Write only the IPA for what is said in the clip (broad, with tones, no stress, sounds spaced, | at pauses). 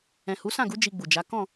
ɛ̃˨ h u˨˦ s ã˦˨ ɡ u˨˦ d͡ʒ i˧ ɡ͡b u˨ d͡ʒ a˨˦ k ɔ̃˦˨